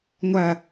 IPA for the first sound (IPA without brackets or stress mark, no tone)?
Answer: ŋʷ